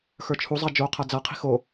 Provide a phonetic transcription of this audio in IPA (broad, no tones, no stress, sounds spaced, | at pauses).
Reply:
x ə˞ t͡ʃʰ u zˤ a d͡ʒ o qʰ a d͡z a qʰ i̤ x o